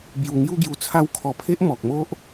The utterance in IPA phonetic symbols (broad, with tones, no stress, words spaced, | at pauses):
bju˧ŋju˦ɡju˧t͡sʰa˦w kʰɔ˧pʰe˦ʔmɔ˨k̚mo˦ʔ